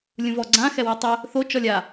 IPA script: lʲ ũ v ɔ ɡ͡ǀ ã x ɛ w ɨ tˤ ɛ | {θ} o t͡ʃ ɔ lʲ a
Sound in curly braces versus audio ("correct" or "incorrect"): correct